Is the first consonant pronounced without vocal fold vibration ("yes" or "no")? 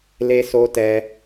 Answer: no